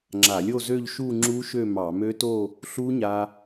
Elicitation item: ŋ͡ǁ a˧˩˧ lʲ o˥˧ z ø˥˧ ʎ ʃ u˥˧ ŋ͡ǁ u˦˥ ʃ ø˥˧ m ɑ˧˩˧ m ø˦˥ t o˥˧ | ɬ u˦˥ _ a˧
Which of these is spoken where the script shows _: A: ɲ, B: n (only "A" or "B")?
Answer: A